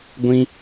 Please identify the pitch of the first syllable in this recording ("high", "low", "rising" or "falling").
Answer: high